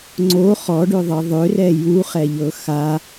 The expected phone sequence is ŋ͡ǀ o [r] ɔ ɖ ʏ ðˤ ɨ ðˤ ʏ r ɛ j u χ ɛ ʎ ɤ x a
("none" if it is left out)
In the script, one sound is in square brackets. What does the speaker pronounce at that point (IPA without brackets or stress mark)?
χ